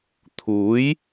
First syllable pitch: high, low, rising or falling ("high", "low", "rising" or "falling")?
rising